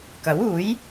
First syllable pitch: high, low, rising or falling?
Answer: rising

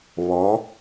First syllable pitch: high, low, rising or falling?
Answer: rising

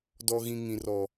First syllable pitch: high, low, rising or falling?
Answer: high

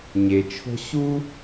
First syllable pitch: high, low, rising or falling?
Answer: low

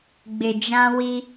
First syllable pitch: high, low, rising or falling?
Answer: low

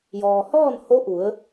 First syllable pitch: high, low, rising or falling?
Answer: low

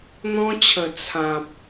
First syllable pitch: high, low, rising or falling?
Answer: high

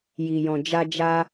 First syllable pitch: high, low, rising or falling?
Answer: low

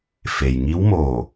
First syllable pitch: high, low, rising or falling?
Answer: low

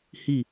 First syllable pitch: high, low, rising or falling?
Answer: falling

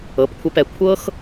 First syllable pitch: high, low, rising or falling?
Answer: rising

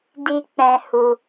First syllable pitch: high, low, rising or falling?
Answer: low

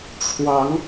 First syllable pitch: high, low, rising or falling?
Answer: rising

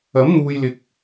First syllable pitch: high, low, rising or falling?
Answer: rising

